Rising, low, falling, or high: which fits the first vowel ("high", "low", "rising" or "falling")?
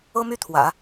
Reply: high